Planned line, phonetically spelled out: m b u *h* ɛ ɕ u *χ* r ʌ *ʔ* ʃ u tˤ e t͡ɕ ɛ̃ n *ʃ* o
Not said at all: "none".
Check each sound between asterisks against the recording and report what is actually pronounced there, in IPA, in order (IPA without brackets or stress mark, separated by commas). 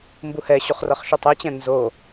h, χ, χ, z